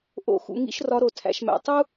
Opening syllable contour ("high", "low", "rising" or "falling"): rising